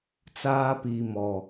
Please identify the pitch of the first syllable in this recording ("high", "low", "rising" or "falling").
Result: high